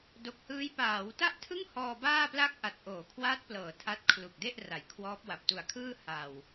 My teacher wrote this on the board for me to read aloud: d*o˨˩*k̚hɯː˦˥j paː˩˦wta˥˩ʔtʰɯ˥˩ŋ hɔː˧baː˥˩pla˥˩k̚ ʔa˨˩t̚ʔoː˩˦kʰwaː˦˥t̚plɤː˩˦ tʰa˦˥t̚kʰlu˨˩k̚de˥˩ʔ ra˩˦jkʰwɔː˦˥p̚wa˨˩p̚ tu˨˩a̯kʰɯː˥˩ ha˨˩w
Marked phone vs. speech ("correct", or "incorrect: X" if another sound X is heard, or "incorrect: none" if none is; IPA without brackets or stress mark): correct